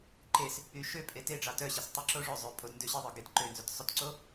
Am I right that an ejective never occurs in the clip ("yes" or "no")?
no